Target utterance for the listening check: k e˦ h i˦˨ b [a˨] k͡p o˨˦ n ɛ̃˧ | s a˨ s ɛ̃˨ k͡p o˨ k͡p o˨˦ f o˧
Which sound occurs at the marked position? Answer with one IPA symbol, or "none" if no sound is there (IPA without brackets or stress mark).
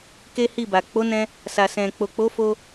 a˨